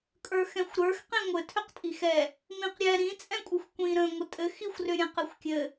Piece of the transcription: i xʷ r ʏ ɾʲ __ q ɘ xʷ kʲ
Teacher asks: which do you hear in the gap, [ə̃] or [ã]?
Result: ə̃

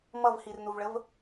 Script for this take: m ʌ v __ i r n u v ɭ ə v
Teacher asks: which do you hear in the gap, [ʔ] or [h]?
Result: h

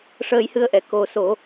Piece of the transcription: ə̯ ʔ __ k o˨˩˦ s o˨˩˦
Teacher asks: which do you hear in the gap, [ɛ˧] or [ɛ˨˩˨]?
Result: ɛ˨˩˨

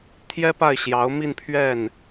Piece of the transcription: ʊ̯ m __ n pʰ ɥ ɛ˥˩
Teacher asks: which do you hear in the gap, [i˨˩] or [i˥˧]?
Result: i˥˧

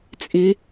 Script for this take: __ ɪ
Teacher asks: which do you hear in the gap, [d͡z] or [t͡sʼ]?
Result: t͡sʼ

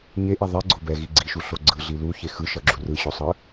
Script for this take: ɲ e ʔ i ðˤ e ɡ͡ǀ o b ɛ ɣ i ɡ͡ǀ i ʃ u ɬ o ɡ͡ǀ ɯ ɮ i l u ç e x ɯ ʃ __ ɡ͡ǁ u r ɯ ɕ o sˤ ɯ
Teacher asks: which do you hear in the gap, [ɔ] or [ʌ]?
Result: ʌ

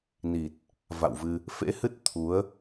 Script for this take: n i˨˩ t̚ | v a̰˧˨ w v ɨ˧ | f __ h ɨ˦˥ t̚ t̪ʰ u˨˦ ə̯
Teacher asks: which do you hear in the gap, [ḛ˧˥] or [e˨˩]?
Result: ḛ˧˥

